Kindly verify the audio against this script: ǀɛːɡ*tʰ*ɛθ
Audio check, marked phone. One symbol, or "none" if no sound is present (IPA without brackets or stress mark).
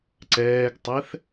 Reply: tˤ